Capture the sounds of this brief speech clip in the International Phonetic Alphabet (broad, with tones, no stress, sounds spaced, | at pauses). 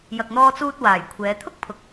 j ɐ˨ k̚ n̪ ɔː˧ t͡s uː˧ t̚ w aː˨˩ j kʷʰ ɛː˨˧ t̪ʰ ʊ˥ k̚ pʰ ʊ˨ k̚